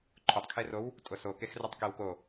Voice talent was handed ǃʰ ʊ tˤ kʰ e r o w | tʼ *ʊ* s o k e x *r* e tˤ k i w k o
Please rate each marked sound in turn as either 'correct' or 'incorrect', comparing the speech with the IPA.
correct, correct

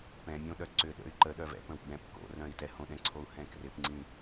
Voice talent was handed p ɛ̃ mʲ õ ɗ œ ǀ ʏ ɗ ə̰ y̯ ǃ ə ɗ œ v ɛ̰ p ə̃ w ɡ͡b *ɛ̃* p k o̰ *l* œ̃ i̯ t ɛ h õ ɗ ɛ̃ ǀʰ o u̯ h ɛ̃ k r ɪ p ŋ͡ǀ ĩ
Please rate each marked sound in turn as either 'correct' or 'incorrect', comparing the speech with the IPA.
correct, incorrect: r

